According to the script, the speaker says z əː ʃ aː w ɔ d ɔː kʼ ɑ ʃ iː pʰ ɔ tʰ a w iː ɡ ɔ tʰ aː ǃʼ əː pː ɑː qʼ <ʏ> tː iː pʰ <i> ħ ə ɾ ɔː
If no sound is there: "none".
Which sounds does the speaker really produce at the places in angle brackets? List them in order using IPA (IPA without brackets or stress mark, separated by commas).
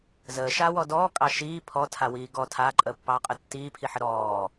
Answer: ə, i